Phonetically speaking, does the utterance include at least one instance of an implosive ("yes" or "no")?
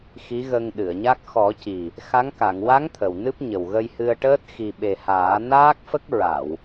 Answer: yes